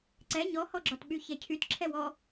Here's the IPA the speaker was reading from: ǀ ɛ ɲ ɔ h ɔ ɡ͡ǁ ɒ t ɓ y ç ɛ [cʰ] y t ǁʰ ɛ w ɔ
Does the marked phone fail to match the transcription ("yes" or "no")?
no